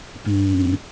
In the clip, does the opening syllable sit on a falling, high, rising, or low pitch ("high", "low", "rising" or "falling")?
low